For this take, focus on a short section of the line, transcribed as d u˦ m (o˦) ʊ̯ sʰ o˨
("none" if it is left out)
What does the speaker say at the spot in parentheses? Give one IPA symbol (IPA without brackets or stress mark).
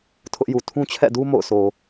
o̰˦˨